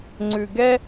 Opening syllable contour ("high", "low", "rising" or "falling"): low